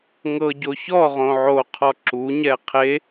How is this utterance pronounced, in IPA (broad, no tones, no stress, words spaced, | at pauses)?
ŋɤɟo çɔʁõ ʕoqʰɔ ǁuɲɛ qʰe